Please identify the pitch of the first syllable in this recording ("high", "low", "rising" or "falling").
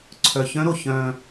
low